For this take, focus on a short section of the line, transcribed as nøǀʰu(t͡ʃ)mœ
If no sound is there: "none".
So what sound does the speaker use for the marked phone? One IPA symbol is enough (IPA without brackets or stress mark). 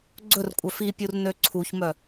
ç